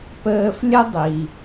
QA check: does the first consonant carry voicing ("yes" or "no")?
no